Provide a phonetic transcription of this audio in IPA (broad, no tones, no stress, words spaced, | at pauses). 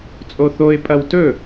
t͡sʼoθoɪ̯ pʼɐwtɵ